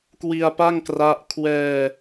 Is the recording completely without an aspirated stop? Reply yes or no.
no